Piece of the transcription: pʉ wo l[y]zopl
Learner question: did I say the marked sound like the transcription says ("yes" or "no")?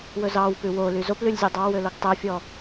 yes